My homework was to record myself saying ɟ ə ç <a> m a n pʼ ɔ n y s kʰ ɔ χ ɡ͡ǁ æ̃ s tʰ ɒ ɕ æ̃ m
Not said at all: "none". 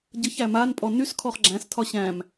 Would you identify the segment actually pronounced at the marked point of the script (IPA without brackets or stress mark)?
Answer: æ